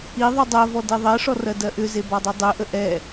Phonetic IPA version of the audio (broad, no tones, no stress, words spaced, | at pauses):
i ðˤudˤɜvɔ deðˤɜʂɔ rɜdɜʔʏze bɔdˤidˤøʔə ʔɛ